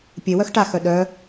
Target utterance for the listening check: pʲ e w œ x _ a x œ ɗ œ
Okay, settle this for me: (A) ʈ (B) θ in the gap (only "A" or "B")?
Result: A